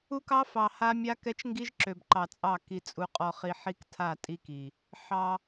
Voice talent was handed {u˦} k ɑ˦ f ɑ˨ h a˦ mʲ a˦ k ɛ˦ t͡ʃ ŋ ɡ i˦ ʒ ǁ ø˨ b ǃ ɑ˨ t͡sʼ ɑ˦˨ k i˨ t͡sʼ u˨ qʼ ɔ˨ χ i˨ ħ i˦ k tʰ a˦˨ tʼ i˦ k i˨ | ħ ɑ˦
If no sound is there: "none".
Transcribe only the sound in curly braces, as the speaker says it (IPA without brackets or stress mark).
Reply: u˦